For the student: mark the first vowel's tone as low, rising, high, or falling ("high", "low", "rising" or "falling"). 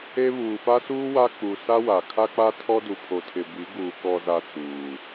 high